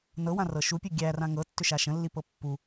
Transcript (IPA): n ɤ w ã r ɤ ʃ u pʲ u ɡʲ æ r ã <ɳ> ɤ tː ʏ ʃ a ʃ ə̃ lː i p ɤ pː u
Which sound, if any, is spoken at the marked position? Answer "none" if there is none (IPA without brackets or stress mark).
ŋ